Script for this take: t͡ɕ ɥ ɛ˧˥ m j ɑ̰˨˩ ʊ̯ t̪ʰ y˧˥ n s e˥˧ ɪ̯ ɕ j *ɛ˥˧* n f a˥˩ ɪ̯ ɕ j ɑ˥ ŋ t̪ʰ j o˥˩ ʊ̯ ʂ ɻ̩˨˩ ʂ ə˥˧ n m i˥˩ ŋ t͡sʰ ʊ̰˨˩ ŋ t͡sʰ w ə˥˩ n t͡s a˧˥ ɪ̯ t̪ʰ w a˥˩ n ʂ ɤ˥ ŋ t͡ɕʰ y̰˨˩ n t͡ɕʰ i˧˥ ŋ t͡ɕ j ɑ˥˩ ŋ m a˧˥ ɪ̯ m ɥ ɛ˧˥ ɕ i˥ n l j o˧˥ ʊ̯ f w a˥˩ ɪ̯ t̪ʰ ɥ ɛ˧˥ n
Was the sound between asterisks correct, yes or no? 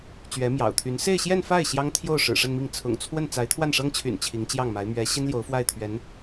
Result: yes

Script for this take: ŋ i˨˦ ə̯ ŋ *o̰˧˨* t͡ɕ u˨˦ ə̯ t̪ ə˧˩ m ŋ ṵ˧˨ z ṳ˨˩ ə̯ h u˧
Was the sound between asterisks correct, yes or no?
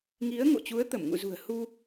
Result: yes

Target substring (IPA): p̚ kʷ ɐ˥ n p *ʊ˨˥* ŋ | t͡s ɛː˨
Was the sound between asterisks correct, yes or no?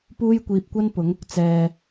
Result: yes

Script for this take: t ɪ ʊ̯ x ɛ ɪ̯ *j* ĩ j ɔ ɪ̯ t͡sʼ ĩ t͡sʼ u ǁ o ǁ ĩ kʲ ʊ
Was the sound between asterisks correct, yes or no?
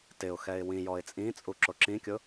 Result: no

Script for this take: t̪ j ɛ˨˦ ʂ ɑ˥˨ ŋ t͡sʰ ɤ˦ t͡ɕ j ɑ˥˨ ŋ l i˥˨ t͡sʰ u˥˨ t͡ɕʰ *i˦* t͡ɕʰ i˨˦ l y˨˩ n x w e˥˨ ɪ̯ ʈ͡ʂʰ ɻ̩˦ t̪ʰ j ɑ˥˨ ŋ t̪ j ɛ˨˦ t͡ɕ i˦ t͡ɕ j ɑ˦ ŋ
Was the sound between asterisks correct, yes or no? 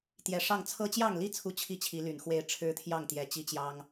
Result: no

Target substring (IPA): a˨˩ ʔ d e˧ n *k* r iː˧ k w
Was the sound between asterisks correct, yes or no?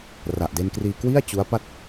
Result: yes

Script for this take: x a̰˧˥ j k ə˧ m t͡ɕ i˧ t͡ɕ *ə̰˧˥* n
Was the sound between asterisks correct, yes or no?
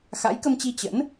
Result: yes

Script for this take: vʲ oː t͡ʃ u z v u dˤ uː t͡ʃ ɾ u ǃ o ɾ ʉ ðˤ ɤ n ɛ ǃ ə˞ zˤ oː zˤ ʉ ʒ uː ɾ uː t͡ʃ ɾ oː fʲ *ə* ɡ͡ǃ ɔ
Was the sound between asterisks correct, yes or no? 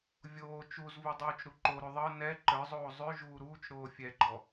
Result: no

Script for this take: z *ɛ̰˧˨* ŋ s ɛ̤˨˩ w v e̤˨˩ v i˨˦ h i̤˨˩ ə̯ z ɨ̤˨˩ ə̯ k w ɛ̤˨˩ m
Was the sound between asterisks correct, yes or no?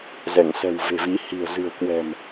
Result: no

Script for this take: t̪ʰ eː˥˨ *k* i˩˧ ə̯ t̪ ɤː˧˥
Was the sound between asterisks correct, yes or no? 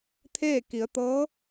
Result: yes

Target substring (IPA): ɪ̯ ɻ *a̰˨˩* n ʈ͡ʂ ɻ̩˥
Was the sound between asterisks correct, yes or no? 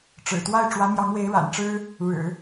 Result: yes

